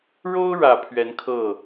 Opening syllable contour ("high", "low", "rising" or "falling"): high